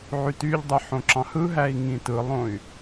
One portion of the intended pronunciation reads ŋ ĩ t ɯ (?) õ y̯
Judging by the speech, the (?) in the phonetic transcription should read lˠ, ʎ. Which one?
lˠ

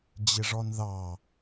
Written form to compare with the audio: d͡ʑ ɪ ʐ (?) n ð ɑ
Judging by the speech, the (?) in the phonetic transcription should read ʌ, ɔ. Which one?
ɔ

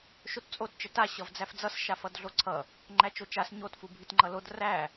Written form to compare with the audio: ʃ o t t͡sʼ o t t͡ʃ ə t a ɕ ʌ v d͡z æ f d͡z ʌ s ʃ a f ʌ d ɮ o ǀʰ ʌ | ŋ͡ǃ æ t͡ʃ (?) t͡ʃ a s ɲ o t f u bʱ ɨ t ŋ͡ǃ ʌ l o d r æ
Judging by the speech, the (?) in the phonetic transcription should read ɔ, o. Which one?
o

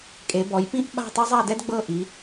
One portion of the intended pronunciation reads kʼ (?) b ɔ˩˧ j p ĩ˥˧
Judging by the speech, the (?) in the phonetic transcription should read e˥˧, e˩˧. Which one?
e˩˧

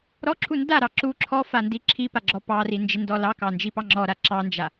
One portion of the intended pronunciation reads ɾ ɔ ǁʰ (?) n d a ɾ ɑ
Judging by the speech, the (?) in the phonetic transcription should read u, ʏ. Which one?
u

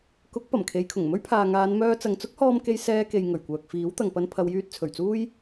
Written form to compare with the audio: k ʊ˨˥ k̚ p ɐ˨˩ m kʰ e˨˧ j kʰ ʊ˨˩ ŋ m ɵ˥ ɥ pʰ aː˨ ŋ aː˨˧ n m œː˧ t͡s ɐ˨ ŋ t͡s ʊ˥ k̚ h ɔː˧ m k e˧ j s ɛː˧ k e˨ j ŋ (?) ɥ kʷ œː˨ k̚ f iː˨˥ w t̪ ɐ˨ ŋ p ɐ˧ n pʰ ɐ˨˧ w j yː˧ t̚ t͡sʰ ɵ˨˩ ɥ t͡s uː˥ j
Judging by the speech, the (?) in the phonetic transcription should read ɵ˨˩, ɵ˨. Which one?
ɵ˨˩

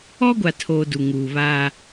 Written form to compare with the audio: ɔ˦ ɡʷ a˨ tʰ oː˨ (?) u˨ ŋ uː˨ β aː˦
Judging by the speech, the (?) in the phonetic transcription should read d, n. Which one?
d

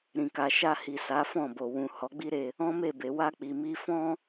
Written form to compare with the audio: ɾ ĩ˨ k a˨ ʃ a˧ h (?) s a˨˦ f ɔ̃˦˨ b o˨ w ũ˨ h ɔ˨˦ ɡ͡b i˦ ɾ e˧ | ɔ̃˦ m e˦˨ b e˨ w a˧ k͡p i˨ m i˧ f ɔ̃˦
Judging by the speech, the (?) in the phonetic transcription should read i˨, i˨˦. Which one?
i˨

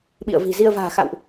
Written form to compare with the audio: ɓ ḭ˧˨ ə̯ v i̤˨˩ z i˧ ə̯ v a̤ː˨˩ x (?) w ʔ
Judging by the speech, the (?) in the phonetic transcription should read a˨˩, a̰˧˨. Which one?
a̰˧˨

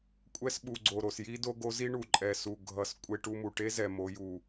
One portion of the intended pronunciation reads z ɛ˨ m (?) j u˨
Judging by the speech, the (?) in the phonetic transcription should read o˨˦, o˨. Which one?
o˨˦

